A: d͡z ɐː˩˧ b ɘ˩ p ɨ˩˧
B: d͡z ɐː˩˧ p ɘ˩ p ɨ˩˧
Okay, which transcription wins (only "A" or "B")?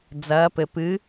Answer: B